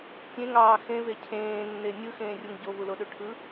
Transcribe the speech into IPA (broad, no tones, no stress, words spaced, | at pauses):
tʲẽŋɑː xẽve cʰẽːnːe nʲɯxẽːrʲuŋ ɟovuloɗø ʈʰɯ